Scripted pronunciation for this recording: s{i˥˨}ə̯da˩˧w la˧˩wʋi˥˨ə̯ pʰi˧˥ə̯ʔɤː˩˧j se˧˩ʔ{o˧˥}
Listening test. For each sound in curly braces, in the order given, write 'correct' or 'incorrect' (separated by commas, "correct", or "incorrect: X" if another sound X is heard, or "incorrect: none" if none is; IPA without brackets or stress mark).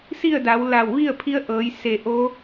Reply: correct, correct